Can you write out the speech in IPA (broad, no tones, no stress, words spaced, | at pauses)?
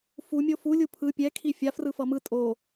fu mʲofu lʲupʰɯ pʲɛ kʰifʲa frɯfʌmɯ tʼo